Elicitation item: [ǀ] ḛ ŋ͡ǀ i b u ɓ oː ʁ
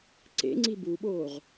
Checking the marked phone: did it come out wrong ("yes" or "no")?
no